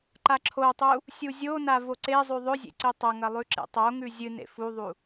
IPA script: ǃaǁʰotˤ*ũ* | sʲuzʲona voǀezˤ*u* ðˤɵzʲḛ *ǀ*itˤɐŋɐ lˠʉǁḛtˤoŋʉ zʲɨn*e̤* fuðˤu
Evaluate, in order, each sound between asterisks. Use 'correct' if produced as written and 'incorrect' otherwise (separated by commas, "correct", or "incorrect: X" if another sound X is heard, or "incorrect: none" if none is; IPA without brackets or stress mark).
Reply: incorrect: u, incorrect: ʉ, correct, incorrect: ḛ